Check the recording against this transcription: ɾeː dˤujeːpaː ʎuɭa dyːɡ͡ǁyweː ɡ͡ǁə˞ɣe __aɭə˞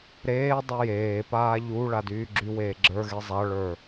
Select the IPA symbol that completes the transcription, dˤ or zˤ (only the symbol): zˤ